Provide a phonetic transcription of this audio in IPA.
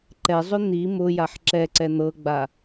ǃɛzˤʏ n̪i mʊ jaħǁɛǀɛ n̪ɤɡ͡ba

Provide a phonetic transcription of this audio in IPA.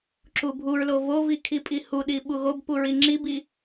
ǁubʱuɹlo vovi kʰipʼihuɗi ɓuɣobpu ɹiŋ͡ǁibi

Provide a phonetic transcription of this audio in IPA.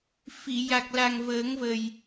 fi˨˩˨ ja˨˩k̚la˨˩ŋ vəː˨˩˦ŋvə˨˩j

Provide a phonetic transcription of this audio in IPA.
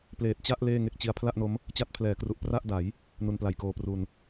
pleː˨˩t̚t͡ɕa˥˩ʔ leː˥˩ŋe˥˩k̚t͡ɕi˦˥a̯ pʰla˥˩ʔno˦˥m | t͡ɕa˦˥t̚pʰlɛː˩˦kru˨˩ʔ pra˥˩ʔda˩˦j | nu˧npla˨˩jkoː˧pru˧n

